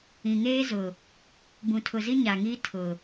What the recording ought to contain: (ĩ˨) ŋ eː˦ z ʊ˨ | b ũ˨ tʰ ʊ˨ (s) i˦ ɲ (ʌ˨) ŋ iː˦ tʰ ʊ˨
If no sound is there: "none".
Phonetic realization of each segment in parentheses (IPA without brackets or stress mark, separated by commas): ĩ˨, z, a˨